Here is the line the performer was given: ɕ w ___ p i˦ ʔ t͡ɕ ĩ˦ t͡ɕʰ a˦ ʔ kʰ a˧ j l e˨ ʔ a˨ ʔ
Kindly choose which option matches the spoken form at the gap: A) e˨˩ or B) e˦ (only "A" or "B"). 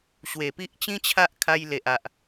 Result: A